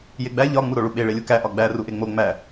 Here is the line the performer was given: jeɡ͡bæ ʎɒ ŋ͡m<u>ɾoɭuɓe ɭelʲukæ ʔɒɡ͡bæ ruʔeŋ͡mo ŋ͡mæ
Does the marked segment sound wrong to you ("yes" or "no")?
no